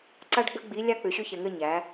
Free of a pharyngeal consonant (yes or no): yes